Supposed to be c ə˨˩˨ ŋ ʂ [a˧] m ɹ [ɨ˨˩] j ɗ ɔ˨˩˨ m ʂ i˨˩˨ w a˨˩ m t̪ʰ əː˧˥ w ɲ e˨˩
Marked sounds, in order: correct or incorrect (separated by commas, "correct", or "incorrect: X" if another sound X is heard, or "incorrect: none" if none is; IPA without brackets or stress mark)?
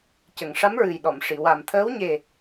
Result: incorrect: a˧˥, correct